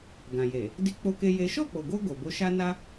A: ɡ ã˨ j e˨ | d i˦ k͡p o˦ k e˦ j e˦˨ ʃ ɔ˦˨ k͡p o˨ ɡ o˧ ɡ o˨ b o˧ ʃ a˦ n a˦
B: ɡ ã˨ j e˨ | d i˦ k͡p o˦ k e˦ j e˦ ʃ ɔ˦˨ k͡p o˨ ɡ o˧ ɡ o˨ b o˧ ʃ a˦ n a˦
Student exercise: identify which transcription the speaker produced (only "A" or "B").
B